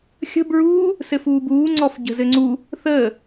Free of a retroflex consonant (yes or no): yes